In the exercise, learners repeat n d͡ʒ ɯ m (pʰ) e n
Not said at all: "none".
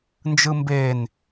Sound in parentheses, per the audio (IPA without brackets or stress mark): b